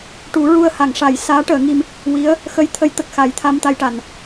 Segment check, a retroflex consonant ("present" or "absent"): present